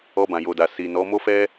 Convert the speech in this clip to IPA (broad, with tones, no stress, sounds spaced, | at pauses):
ɔ˧ b ã˨ j o˨ d a˨ s i˨ n ɔ˨˦ m o˦ f ɛ˦